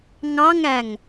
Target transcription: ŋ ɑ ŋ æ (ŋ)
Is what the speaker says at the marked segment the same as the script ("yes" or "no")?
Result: yes